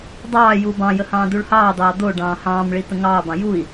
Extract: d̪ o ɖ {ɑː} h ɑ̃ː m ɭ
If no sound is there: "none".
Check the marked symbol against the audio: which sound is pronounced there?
ɑ̃ː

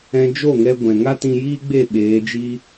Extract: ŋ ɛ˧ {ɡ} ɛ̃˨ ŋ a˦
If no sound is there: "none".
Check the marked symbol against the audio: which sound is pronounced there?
ɡʷ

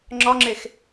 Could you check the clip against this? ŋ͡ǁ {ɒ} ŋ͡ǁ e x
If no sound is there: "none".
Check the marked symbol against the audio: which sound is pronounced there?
ɒ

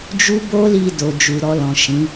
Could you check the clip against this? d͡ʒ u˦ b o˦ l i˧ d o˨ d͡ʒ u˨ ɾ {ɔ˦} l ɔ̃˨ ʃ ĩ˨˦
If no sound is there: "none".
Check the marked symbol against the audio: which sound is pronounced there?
ɔ˧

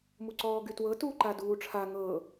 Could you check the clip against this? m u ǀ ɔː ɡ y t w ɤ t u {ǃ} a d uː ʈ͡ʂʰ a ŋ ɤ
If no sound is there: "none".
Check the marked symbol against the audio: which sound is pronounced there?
ǃ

